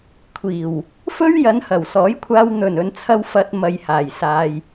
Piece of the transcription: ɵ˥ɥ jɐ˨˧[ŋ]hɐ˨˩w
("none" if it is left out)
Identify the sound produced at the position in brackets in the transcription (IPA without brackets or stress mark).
n